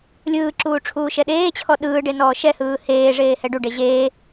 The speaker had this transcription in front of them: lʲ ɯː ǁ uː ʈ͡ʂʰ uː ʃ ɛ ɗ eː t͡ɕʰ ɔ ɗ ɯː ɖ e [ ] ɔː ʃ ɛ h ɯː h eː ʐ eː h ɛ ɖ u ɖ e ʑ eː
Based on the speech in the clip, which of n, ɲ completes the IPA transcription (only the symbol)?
n